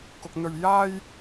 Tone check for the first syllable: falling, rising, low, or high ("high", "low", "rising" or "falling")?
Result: high